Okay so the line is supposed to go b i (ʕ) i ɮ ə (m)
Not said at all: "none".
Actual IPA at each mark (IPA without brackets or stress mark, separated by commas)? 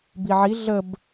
ʕ, b